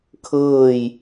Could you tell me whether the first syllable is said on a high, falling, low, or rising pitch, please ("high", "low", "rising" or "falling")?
falling